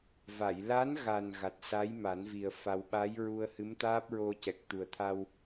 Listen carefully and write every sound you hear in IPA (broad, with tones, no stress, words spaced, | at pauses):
va˨˩˨jla˧˥nɣa˨˩n ɣa˨˩t̚sa˧˥jma˨˩˦nvi˨˩ə̯ fa˨˩wɓa˧˥jɹu˧ə̯hɨ˧˥m t̪aː˦˥p̚ɹo˧cɛ˨˩k̚ t̪u˨˩ə̯t̪ʰa˧w